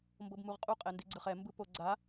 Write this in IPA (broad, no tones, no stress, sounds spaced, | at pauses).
m b ɤ b m u ʁ qʼ u qʼ ɛ n d i ɡ͡ǀ ɯ χ ɛ m b ɯ p o ɡ͡ǀ a